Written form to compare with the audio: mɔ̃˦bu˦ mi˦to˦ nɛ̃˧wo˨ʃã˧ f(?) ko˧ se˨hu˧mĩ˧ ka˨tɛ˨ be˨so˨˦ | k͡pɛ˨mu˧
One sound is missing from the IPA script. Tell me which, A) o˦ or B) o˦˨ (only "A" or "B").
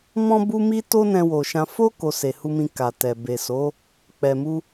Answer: A